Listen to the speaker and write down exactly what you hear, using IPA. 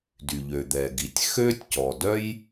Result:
d y˩ ʎ ø˩ d̪ ɛ˩ ɡ i˩ tʲ x ø˥ tʲ c ɔ˩ d œ˥ j

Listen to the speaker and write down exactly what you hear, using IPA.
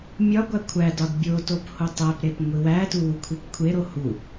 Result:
mʲ ɒ ɡʷ æ kʷʰ æ d ɒ d bʲ o t o p h o tˤ æ p ɾ e p ŋʷ i w æ t u w u kʷʰ i p kʷʰ e ɾ o h u

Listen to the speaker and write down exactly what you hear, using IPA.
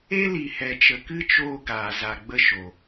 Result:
e˦ l i˨ h ɛ˨ t͡ʃ ə˨ k ɨ˦ t͡ʃ oː˧ ɡ aː˨ z a˨ ɡ͡b ə˧ ʃ o˨

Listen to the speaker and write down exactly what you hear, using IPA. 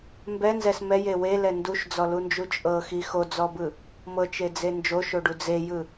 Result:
m b ɛ n z ɛ s m ɛ j e w e l ɛ n d u ʃ d͡z ɔ l u n d͡ʒ u t͡ʃʼ ɤ x i x o d͡z ɔ b ɯ | m ɤ t͡ʃ e d͡z e n d͡ʒ o ʃ o ɖ u d͡z e j ɯ

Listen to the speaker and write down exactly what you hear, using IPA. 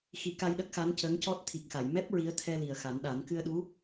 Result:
x i˨˩˦ k a˧ j ɗ ə˦˥ k̚ x a˧˥ n c ə˧˥ ŋ c ɔ˦˥ t̚ t̪ʰ i˨˩ k̚ x a˨˩˨ j m ɛ˦˥ p̚ ɹ i˧˥ ə̯ t̪ʰ ɛ˧ l i˨˩ ə̯ x a˨˩˦ n ɗ a˨˩˦ n k ɨ˧ ə̯ ɗ u˧˥

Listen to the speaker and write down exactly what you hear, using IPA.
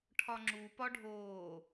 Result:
ʈʰ ɒ ŋ͡ǁ u p ɒ ɖʱ oː

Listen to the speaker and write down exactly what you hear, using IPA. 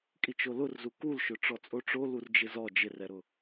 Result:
kʼ i t͡ʃ o l ʊ r z u k u l ʃ ʊ ʈ͡ʂ ɔ t͡sʼ o ʈ͡ʂ o l u r d͡ʒ ɪ z ɔ d͡ʒ ɪ r ɛ ɾ ʊ

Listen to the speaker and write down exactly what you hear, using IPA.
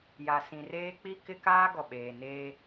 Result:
j a˨ s ĩ˨ r eː˦ k͡p i˦ k ɪ˦ k aː˦ ɡ ɔ˨ ɓ eː˨ n eː˦

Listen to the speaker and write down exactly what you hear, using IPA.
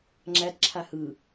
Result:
ŋ͡ǁ æ t ǁʰ a h ɯ

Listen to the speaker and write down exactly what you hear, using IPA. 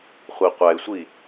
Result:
χʷ i qʷ æ ɪ̯ sʷ i

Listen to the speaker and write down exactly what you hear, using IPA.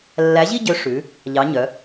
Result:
lː æ˨˥ ʑ i˥ ɟ ø˨˥ ʂ ʉ˩˧ | ʎ ɑ˩˧ ɲ œ˩˧

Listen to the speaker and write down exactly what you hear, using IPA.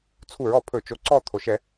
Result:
t͡sʰ u˧˩˧ ɹ ɔ˩ pʰ ɵ˧˩˧ t͡ʃ o˩˧˩ ǀ ɔ˦˨ t̪ʰ o˩ ʃ ɛ˧˩˧

